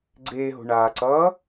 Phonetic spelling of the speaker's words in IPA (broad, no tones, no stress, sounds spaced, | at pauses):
ɡ͡ǀ eː ɦ o̤ ɳ aː ǀ ʌː